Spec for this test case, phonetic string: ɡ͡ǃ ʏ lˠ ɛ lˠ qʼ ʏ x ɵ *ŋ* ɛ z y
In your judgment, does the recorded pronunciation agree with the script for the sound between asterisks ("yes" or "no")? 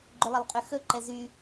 no